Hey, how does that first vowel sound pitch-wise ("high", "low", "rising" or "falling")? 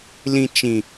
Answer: low